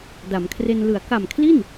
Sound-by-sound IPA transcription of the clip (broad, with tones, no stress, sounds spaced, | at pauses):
d a˩˦ m kʰ r e˧ n l ɯ˩˦ a̯ k a˨˩ m kʰ l i˥˩ n